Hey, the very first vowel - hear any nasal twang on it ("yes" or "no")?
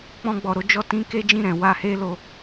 yes